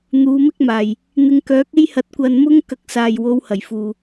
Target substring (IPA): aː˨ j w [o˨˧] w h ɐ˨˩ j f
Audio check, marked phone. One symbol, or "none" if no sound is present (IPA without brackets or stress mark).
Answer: o˨˧